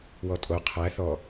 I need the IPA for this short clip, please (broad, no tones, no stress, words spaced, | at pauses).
wɔtʼo qʰæ θɔ